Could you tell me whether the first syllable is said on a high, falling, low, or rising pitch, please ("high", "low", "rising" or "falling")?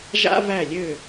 high